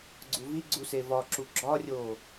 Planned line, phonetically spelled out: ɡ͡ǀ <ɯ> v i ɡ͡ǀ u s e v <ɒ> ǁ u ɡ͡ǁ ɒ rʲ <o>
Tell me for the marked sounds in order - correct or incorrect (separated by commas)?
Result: incorrect, correct, correct